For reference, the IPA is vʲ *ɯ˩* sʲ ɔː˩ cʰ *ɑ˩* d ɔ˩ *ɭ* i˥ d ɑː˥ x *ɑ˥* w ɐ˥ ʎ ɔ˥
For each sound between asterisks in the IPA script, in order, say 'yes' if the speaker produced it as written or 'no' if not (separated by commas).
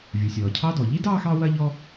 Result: no, no, no, yes